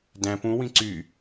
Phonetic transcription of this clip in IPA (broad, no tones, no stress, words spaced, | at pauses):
dæ̃ pũwĩ ǀy